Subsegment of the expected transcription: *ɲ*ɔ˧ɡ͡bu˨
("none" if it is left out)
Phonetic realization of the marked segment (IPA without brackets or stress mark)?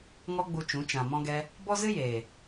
ŋ